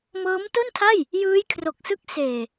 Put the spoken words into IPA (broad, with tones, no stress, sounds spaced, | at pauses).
m ɤː˦˥ m t o˥˩ n tʰ a˥˩ j | j ɯː˦˥ j kʰ r o˨˩ k̚ s ɯ˦˥ k̚ s eː˨˩